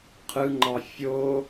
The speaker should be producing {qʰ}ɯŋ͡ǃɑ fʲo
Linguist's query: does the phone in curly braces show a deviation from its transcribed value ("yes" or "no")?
no